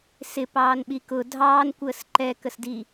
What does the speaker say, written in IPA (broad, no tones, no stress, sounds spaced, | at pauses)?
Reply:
s ɪ p ɑː n ɓ i k ʊ dʱ ɑː n kʷ əː s ǃ ɛ k ə s d i